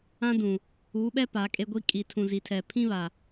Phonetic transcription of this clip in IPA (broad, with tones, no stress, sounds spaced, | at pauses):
ã˦ d ũ˨ | uː˨˦ ɓ ɛ˦ p a˨˦ kʼ e˦ ɡʷ i˦ kʼ i˨ tʰ ũ˨ z i˨ tʰ ɛ˨ pʰ ĩ˦ β a˨